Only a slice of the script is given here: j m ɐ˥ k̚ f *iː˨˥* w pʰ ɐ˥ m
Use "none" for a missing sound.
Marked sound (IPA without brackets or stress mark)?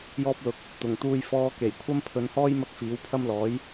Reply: iː˨˥